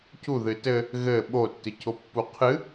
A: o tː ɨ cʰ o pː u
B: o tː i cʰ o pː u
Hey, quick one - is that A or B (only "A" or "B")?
A